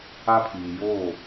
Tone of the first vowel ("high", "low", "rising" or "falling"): high